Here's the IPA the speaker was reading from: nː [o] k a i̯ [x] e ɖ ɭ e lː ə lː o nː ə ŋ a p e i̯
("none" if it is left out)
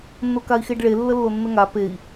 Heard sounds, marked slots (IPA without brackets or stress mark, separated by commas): o, x